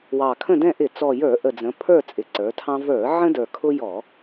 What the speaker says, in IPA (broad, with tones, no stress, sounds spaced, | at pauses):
w ɑ˨˩ kʰ ə̃˦˨ d ɛ̃˦˨ ʔ ɪ˧˩˧ t͡s ɔ˨˩ j ə˞˧˩˧ ʔ ə˨˩ d͡z ə̃˩˧ pʰ ə˞˦˨ t͡sʼ ɪ˩˧ ǀ ə˞˩˧ tʰ ɑ̃˦ v ə˞˧˩˧ ʕ ə̃˦ d ə˞˨˩ kʰ ʊ˦ j ɔ˧˩˧